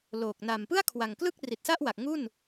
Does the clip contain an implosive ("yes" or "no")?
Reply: no